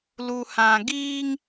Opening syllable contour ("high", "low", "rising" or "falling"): low